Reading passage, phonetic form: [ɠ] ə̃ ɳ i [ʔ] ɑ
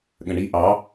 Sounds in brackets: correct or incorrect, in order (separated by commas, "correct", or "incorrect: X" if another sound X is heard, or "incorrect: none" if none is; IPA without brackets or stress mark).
correct, correct